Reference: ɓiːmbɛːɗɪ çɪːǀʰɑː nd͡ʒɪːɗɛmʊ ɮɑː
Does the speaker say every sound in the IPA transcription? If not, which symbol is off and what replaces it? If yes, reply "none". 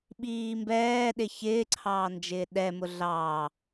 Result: none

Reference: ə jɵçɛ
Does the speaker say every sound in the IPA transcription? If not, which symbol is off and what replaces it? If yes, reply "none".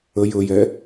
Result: ç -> j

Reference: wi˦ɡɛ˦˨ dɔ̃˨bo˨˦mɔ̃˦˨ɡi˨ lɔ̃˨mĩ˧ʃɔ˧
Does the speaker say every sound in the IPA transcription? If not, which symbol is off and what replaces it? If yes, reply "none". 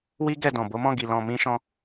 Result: ɔ˧ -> ɔ̃˧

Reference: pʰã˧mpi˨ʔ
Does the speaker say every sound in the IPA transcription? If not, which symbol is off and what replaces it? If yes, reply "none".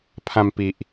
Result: none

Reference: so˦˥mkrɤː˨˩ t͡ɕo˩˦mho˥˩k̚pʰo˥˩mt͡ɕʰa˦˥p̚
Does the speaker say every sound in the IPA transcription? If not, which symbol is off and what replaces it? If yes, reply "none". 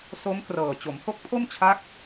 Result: p̚ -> k̚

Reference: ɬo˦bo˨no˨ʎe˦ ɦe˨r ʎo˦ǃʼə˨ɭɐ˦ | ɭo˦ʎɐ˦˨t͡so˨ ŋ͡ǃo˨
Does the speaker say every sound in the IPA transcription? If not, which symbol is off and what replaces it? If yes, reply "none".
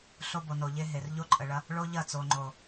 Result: none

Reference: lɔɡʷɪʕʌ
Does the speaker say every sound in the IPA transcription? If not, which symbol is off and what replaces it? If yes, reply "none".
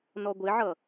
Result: l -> n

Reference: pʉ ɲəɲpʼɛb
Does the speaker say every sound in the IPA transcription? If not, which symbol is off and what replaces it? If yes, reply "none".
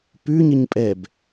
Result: none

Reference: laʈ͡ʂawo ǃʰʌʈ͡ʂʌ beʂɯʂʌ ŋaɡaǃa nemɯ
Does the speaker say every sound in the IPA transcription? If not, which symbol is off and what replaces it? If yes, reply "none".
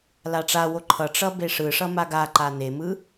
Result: ŋ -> m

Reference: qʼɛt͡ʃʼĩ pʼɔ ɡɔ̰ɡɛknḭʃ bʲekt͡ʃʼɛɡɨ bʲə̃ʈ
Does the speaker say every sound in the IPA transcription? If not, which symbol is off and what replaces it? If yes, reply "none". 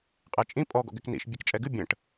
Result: none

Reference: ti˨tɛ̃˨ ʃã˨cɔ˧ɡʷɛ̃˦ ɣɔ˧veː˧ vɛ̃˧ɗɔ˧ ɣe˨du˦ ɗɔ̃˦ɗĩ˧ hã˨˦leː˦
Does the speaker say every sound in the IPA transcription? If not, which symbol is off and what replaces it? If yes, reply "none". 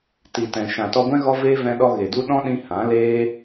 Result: c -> t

